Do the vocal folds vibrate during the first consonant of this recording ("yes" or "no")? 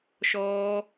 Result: no